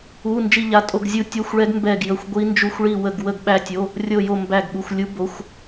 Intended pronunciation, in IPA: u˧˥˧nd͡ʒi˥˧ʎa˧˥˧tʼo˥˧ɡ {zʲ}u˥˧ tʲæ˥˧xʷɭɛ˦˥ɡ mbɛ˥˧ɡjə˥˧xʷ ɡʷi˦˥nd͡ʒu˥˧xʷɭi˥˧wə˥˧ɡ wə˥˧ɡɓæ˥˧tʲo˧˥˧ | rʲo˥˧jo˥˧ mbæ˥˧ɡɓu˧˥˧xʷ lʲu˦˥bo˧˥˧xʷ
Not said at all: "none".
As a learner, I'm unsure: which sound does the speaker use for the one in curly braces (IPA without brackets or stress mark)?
zʲ